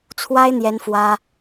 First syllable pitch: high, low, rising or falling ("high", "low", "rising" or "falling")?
high